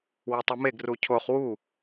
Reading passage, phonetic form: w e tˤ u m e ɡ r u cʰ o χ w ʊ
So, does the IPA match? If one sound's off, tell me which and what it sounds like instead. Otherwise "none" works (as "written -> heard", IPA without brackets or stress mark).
ʊ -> u